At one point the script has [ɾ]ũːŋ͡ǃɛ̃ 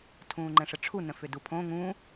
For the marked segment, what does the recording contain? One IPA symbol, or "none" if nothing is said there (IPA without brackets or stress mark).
tʰ